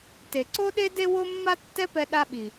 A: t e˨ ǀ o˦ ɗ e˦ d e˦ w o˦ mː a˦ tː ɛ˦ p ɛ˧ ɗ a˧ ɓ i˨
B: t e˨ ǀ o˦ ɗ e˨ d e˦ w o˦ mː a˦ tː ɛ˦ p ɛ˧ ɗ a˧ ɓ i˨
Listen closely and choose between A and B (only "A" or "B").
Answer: A